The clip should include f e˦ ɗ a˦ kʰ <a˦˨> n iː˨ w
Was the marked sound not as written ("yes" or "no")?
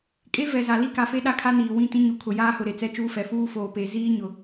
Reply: yes